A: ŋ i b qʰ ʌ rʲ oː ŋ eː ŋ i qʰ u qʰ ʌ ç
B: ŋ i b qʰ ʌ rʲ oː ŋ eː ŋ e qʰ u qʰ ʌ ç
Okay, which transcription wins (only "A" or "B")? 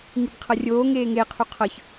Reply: B